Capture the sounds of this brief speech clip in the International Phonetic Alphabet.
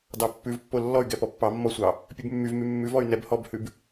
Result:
d ɑ pː ʉ v pː o lː ɔ y̯ ɡ ɛ p ɔ pː ɑ mː ɔ sʷ ɑ | pʲ ʉ b mː y v m y mː ʉ v ɔ y̯ n ɛ b h ɔ b h ʉ b

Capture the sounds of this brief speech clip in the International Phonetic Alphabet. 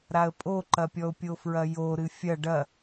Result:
ɾ a ə̯ pʼ o ǃ ɐ pʲ ɔ ʊ̯ pʲ o f ɹ ɐ j o ɾ ɨ fʲ ɐ ɖ ɐ

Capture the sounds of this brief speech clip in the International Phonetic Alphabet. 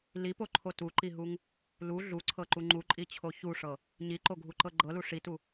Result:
l i p o ǃʰ o t u ǃ i ɦ u ŋ | l u ɮ u ǀʰ ɤ ǃ u ŋ͡ǃ u ǃʼ i t͡ɕʰ o ç u ʂ ɤ | ɲ i ǃ o ɡʱ u ǃ ɤ ɡ͡ǃ ɤ l u ʂ i t u

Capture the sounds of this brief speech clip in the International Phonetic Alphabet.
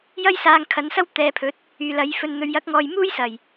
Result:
j ɐ˥ j s aː˧ ŋ kʰ ɐ˨˥ n s ɐ˥ w t̪ ɛː˨˧ pʰ ɵ˨˥ t̚ | yː˨ l ɐ˨˥ j f ɵ˧ n n̪ ɵ˨˧ ɥ j ɐ˨˥ k̚ ŋ ɔː˨ j m uː˥ j s ɐ˨˩ j

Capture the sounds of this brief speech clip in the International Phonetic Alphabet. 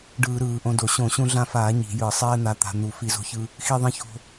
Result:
ɖ ɯː˧˩˧ ɾ ɯː˧˩˧ ʔ õ˧ d o˧˩˧ ɕ õ˧˩˧ ɕ ũ˧ ɮ ã˧ f aː˧˩˧ ɲ i̤˧˩˧ j ɯ˧˩˧ sˤ ɛː˧ n̪ a˧ t̪ a̤˧ n̪ u˧˩˧ f i˧˩˧ z o̤˧ ç ɯ˧ | x i˧ ðˤ ĩ˧ ç o̤˧

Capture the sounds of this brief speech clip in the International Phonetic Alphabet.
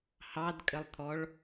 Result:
h ɑ d kʼ ə lˠ t̪ʰ ɔ ɭ

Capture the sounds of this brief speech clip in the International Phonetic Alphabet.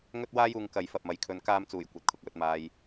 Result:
ŋ ɵ˥ t̚ w aː˥ j uː˧ ŋ k ɐ˨˧ j f ɐ˨ p̚ m ɐ˨ j kʰ ɵ˨˧ n k aː˧ m t͡s uː˨˩ j kʷ ɐ˨ t̚ kʰ ʊ˨ k̚ w ɵ˧ t̚ m aː˧ j

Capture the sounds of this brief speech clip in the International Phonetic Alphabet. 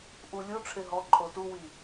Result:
ʔ u lʲ u ʈ͡ʂʰ e ɦ ɔ ǃʼ o t u w i

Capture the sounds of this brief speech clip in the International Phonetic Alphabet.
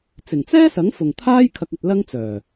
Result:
t͡s ɪ˨˩ ŋ t͡s ɛː˥ s ɐ˨˥ ŋ f ʊ˨˩ ŋ t̪ʰ aː˥ j kʰ ɐ˧ k̚ ɐ˧ t̚ l ɐ˥ ŋ t͡s œː˨˩

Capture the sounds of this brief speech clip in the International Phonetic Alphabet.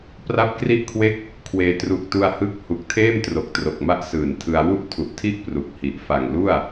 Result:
p r a˦˥ p̚ k r i˥˩ ʔ kʰ w e˥˩ k̚ | kʰ w eː˧ t r u˨˩ k̚ t u˧ a̯ h ɯ˦˥ k̚ h u˨˩ k̚ tʰ eː˥˩ m t r o˨˩ k̚ t r o˨˩ k̚ m a˦˥ ʔ s ɯː˨˩ n tʰ ɯ˧ a̯ w u˥˩ ʔ tʰ u˨˩ ʔ tʰ i˥˩ ʔ p r u˨˩ k̚ h i˨˩ ʔ f a˨˩ ŋ l u˥˩ a̯

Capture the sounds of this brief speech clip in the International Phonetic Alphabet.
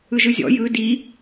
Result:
ɯ ʒ ɯ zʲ ɔ̰ j ɯ d i

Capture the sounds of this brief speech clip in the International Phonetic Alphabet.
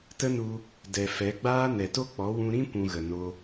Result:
t ə˦ n u˧ | d ɛ˨ f ɛ˨˦ ɡ͡b aː˦ n ɛ˨ t o˦ k͡p ɔ˨˦ w ũ˧ ɾ ĩ˦ kʷ ũ˧ ɣ ə˨ n o˧

